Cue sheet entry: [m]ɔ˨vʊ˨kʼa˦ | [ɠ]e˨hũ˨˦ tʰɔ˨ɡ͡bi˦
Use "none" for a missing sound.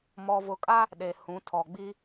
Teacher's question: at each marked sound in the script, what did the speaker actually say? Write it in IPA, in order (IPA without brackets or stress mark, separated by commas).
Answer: m, ɗ